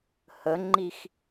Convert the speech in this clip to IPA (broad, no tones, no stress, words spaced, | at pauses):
həŋ͡ǃix